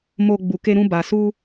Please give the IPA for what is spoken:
m o˦ ɡ͡b u˧ k e˦ ɾ ũ˦ b a˧ s u˦

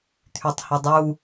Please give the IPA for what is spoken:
t̪ʰ y tˤ h i dˤ u

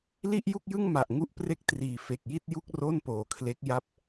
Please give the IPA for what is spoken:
l i˥˩ ʔ j u˥˩ k̚ j ɯ˥˩ ŋ m a˨˩ ʔ ŋ u˥˩ ʔ p r e˥˩ k̚ t r iː˨˩ f e˨˩ k̚ j i˥˩ t̚ j u˥˩ k̚ r o˥˩ n p oː˨˩ kʰ l e˦˥ k̚ j a˦˥ p̚

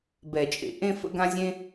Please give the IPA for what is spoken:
b ɛ˨˩˦ t͡ʃʼ ḛ˨˩˦ ʔ ẽ˥ f ə̰˥ ɡ ã˥ zʲ ẽ˥

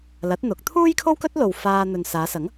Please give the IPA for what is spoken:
l ɐ˨˥ t̚ n̪ ʊ˨˥ k̚ t̪ʰ uː˥ j kʰ o˥ w k ɵ˥ t̚ l o˨ w f aː˧ n̪ ɵ˨ n s aː˨˧ s ɐ˨˥ ŋ

